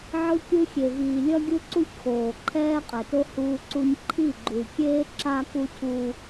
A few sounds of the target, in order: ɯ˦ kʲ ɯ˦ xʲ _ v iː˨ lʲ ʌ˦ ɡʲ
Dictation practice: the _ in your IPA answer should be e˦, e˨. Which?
e˨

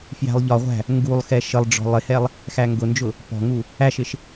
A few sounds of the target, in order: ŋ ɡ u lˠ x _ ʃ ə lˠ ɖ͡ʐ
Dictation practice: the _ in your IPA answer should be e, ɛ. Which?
ɛ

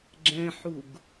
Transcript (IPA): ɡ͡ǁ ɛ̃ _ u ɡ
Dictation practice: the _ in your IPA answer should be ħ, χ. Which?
ħ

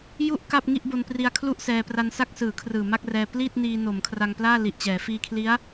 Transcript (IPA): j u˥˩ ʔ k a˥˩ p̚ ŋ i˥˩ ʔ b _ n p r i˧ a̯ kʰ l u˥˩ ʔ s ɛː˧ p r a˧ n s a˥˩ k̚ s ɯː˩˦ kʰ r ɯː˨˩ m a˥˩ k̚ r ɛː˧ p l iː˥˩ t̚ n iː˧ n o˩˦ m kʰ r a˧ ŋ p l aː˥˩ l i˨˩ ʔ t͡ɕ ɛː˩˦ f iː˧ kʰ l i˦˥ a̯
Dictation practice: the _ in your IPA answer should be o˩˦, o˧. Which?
o˧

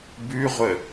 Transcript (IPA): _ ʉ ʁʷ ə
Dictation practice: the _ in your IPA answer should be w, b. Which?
b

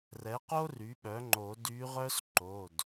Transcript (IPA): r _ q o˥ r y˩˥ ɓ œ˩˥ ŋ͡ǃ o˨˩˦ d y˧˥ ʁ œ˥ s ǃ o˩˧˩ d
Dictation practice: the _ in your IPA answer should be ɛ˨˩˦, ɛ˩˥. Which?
ɛ˩˥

